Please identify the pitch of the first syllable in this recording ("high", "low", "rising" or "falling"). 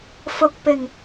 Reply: low